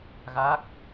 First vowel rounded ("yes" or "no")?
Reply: no